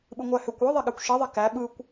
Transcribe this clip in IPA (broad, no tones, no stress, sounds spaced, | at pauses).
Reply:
ɓ ɨ ŋʷ æ h ø kʷ ɯ ðˤ e ɠ æ kʷ ʃ i ðˤ ɛ k æ ɓ ɯ kʷ